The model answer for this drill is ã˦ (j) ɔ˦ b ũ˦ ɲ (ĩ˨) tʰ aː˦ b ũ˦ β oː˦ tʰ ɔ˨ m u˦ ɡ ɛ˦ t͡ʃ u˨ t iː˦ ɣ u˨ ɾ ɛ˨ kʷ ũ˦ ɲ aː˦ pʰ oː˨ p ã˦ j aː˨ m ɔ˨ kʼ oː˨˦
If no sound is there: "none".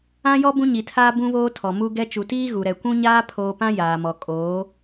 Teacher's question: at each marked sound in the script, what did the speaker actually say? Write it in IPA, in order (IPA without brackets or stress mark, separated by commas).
j, i˨